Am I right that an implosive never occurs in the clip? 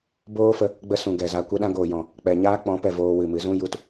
no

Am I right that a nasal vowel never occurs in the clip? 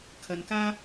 yes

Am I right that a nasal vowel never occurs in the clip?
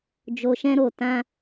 no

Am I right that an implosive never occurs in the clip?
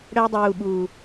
no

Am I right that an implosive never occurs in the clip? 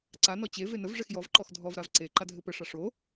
yes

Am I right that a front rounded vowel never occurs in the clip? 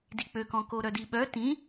no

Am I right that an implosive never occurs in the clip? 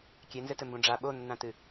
no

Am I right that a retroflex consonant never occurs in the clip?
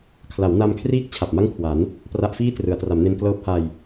yes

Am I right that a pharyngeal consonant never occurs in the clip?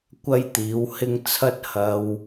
yes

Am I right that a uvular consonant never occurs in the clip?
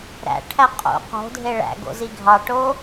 no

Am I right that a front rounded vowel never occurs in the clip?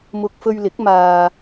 yes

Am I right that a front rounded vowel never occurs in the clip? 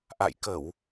yes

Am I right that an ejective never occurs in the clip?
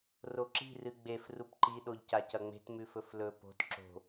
yes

